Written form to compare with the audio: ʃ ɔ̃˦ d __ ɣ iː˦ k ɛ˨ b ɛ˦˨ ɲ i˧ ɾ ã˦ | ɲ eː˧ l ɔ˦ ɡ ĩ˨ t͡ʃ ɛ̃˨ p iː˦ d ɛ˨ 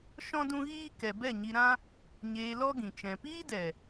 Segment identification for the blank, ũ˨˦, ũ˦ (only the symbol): ũ˦